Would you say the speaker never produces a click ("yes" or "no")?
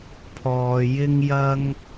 yes